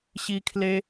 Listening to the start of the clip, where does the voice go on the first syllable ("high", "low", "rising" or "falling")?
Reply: high